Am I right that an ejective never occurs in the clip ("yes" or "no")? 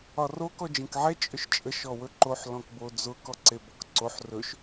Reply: no